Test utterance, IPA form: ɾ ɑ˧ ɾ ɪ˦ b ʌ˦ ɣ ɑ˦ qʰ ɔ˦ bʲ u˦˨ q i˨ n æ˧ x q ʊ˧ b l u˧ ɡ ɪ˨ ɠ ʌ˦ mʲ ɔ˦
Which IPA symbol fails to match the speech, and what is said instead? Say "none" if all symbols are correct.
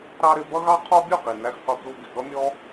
none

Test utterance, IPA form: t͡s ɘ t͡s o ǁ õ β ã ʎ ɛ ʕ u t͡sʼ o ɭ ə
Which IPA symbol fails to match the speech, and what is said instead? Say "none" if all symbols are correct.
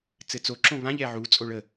none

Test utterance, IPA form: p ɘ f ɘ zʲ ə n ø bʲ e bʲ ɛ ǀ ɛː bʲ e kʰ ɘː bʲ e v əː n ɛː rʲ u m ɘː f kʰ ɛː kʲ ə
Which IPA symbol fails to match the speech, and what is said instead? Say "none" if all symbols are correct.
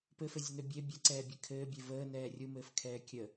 none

